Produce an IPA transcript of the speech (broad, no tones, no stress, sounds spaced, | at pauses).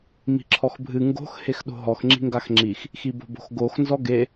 m i̤ ǁʰ ɔ x bʱ ɨ ŋ ɡ o̤ x h e x ɗ o̤ ɦ ɔ x ŋ͡ǁ i̤ ŋ ɡ a x ŋ͡ǁ i x | x i b o̤ b o̤ x ɡ o x n z ɔ ɡ e